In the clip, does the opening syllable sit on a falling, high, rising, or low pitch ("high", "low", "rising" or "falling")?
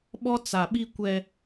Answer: high